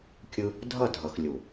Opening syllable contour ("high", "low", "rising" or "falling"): high